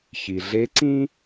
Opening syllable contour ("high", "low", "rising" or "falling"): low